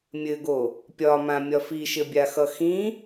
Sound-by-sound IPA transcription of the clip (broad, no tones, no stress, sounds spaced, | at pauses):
mʲ ɘ ɡ o | pʲ ɒ m ã mʲ ɒ f i ʃ ɘ bʲ a x ʌ x ĩ